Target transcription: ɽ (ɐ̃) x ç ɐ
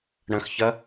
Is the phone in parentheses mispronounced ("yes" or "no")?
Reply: no